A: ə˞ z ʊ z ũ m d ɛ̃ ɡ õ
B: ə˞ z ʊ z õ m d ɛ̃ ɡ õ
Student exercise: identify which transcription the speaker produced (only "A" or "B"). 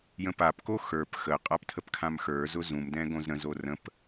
A